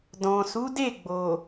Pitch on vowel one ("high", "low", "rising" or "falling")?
low